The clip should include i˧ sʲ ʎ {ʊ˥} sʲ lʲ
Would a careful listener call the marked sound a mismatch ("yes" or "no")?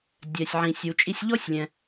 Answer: yes